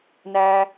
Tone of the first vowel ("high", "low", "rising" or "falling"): high